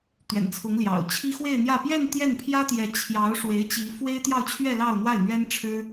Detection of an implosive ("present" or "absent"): absent